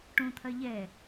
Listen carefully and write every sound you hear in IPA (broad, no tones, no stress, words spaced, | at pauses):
ʈõt̪ʰɐ ʎɛ